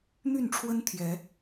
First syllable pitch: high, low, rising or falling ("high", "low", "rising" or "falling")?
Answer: falling